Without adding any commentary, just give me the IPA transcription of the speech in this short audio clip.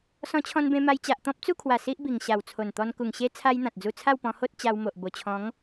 s ɔ̃˧ t͡ɕʰ ɔ̃˧ n b ẽ˧ m a˧ j t͡ɕ a˨ ʔ t̪ ɔ̃˦ p̚ t͡s u˥˧ kʰ w a˨˩ s i˦ ʔ b i˨˩ ŋ ɕ a˨˩ w t͡sʰ o˨˩ n t̪ ɔ˧ n k u˨˩ ŋ ɕ e˦ t͡sʰ a˦ j n̪ ã˨ t̚ d͡z u˧ t͡sʰ a˥˧ w p ɔ̃˧ h o˦ t̚ t͡ɕ a˧ w m o˨ ʔ b o˨˩ t͡ɕʰ ɔ̃˨˦ ŋ

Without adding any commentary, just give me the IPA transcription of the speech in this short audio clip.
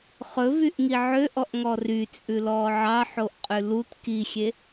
χ ɵ v y ʔ ŋ i ʕ ø ʔ ɔ ʔ ŋ ɔ r y t͡sʼ ʉ l ɔː ʕ ɑ ħ o ʔ qʼ ʉ l u t k i xʲ e

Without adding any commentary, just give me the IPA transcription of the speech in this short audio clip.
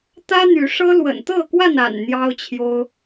t̪ ä˦ n̪ y˨˦ ʂ ɤ˦ l w ə̰˨˩ n t̪ ɤ˥˨ k w a˥˨ n a̰˨˩ n n̪ j ɑ˦ ʊ̯ t͡ɕʰ j o˦ ʊ̯

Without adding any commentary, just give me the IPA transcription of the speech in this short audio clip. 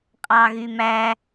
qʼ ɑ ɣ y m æ

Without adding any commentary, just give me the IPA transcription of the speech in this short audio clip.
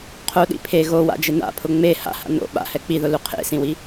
qʰ o ɗ ḭ pʰ e ɣ o w a̰ d͡ʒ ɪ n a̰ pʰ ʊ ŋ͡m e h a̰ h a̰ n o̰ ɓ a̰ h ɛ k͡p i ð ʊ l u qʰ ḛ s ĩ w i

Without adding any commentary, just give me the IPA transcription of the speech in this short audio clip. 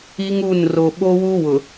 i˦ ŋ u˦˨ n r o˨ ɓ o˦ w u˦ w ʊ˨

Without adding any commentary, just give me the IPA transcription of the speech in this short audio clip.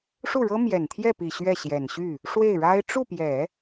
ʂ u˥˩ ɻ ɤ˥ m j ɛ˨˩ n t̪ʰ j ɛ˥˩ p i˨˩ ɕ ɥ ɛ˥˩ ɕ j ɛ˨˩ n ɕ y˥˩ | ʂ w e˥˩ ɪ̯ ɻ a˥ ɪ̯ ʈ͡ʂ u˥˩ p j ɛ˨˩˦

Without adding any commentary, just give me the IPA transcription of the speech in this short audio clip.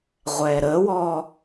ʁʷ ɛː ɾ əː w ɔː

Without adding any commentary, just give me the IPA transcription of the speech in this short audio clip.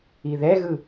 i ð ɛ ɣ ɯ

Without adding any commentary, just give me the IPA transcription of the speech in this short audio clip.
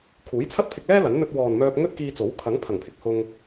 kʰ uː˨˥ j t͡sʰ ɐ˥ t̚ pʰ ɪ˧ k̚ l ɛː˥ l ɐ˨˥ n n̪ ɵ˧ t̚ w ɔː˨ n m œː˧ p̚ ŋ ɵ˥ t̚ k iː˧ t͡s o˨˥ w kʰ ɐ˨˥ ŋ pʰ ɐ˨˩ ŋ pʰ ɪ˨ k̚ h ʊ˧ ŋ

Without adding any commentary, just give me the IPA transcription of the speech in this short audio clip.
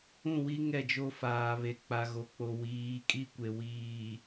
ũ˦˨ w i˦ ŋ ɛ˦˨ d͡ʒ o˦ f aː˨ β e˨ k͡p a˨ ɣ o˨ k͡p o˨ w iː˨˦ kʼ i˦ kʷ e˨ w iː˨

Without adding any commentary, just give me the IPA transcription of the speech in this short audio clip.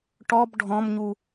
ʈ ɔ b ɖʱ ɔ̃ m ɲ u

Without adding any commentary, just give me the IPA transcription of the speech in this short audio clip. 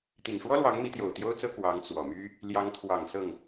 t̪ i˨˩ ŋ ʂ w ɔ˥ l w ɑ˧˥ ŋ m i˧˥ t̪ j o˨˩ ʊ̯ t̪ j o˥ ʊ̯ t͡s ɤ˥ k w ɑ˧˥ ŋ t͡s w ɔ˨˩ m y˥ | l j ɑ˧˥ ŋ t̪ʰ w ɑ˨˩ ŋ s ɤ˥˩ ŋ

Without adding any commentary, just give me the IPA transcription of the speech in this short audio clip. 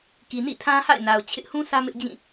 k i˨ n ḭ˦˨ tʰ ã˦ h a̰˦˨ ɪ̯ n a˨ ʊ̯ t͡ɕʰ ɪ˦ ʔ h ũ˦ sʰ ä˦ m ɪ˦ ʔ d͡ʑ ĩ˦˨

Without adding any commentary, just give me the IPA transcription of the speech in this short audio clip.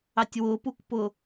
ɑ tʲ w ʊ p u k p ʊ

